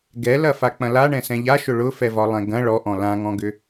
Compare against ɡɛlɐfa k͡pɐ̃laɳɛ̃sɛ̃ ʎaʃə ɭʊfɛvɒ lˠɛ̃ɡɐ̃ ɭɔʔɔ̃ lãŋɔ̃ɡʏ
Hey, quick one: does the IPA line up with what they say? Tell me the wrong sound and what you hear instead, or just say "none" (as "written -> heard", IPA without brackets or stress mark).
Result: ə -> ʊ